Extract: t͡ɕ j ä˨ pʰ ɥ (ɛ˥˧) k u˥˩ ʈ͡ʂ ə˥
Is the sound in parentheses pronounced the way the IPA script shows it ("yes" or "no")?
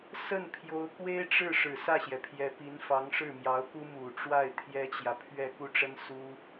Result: yes